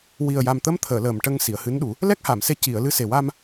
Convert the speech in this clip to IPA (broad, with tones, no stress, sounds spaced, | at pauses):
w i˨˩ ə̯ j a˨˩ m t̪ ə˧˥ m t̪ʰ əː˨˩˨ l əː˨˩ m ʈ ə˧ ŋ s i˨˩˨ ə̯ h ɨ˧˥ n ɗ u˨˩˦ | l ɛ˦˥ k̚ h a˨˩˨ m s e˧ c i˨˩˨ ə̯ l ɨ˧ s e˨˩ w a˧ m